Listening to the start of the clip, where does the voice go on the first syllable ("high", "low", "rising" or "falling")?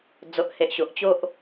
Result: low